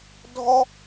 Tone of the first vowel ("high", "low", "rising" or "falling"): high